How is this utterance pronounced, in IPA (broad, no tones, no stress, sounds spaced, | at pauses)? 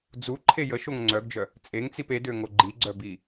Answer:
d͡z u ǃʰ e j ə ʃ o ŋ ŋ͡ǀ œ ɡ d͡ʒ œ | t͡sʼ e ŋ t͡s i p e d ø ŋ o ɡ͡ǃ i ɡ͡ǀ œ b i